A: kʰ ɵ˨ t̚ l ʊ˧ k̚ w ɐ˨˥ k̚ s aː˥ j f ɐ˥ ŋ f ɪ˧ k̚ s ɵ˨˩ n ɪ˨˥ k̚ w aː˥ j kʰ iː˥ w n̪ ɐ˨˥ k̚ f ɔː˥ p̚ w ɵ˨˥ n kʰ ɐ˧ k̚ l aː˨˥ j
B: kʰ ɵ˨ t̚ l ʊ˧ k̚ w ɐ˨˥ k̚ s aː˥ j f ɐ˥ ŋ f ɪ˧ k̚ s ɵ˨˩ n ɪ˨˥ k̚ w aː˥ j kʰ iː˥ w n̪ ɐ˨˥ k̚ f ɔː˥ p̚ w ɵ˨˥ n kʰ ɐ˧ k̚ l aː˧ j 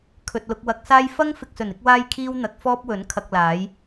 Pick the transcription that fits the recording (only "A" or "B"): A